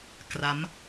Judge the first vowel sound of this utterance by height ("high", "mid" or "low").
low